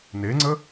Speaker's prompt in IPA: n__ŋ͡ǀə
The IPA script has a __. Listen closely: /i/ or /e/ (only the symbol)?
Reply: e